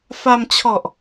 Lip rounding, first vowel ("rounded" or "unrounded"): unrounded